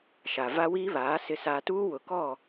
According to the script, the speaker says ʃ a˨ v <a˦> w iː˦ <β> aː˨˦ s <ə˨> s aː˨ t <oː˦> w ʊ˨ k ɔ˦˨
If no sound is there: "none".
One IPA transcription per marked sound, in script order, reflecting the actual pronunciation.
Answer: a˦, β, ɪ˨, uː˦

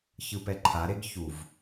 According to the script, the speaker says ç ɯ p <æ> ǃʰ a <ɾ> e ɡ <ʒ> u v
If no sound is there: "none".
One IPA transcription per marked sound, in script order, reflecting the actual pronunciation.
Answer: ɛ, ɾ, ç

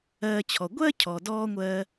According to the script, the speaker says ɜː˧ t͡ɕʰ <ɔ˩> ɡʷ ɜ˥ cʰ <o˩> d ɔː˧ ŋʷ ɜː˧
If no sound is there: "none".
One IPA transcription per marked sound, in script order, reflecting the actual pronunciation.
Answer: ɔ˩, ɔ˩

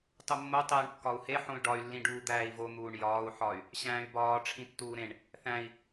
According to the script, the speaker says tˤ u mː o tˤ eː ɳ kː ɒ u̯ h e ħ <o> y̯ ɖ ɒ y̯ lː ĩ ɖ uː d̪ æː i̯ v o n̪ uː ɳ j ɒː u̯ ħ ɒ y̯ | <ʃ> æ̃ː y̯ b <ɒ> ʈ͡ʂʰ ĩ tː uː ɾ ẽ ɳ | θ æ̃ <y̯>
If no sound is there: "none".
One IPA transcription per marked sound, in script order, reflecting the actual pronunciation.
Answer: õ, ɕ, ɒː, i̯

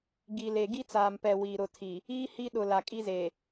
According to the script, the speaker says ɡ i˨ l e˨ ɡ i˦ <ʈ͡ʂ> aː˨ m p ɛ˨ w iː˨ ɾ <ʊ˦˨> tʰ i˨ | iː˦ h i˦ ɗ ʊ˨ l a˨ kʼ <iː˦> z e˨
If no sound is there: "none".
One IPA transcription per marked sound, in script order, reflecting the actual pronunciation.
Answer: t͡s, ʊ˦˨, i˦

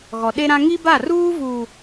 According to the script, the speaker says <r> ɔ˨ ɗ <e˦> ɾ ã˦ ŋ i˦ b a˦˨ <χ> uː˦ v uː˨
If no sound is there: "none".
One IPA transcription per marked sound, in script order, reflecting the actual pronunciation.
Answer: ɣ, e˦, r

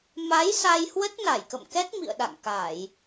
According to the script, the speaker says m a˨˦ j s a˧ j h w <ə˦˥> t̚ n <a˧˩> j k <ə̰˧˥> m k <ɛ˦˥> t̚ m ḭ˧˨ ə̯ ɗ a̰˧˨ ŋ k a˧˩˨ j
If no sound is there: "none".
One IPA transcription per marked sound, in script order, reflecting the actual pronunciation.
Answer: ə˦˥, a˧˩, ə̰˧˨, ɛ˦˥

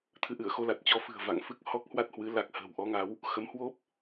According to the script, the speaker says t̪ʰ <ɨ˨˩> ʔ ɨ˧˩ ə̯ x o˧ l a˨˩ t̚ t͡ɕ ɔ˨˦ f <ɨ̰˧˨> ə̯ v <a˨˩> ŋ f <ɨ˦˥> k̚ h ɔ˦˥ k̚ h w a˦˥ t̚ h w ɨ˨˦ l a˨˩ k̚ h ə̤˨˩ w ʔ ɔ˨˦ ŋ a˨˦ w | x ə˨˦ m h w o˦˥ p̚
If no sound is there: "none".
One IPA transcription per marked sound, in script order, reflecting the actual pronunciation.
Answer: ɨ˨˦, ɨ̤˨˩, a̰˧˨, ɨ˦˥

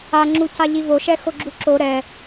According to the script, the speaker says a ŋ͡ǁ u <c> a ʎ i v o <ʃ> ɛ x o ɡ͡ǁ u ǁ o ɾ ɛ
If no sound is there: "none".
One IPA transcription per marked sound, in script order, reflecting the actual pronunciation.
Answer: c, ʃ

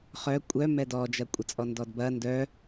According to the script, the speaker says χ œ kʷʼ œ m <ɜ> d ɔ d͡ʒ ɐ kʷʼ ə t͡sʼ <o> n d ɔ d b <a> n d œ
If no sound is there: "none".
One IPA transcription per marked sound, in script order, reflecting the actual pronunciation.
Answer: ɛ, ɔ, ɐ

